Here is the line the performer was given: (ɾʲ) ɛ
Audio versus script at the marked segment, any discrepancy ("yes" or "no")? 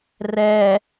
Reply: yes